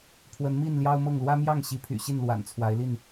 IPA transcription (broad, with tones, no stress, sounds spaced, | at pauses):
pʰ w ə˨˦ n m i˥˨ n l j ɑ˦ ʊ̯ m ɤ˥˨ ŋ l w ä˦ m j ɑ˥˨ ŋ ɕ i˨˦ pʰ y̰˨˩ ɕ i˥˨ n l w a̰˨˩ n t͡sʰ w a˨˦ ɪ̯ l i˥˨ n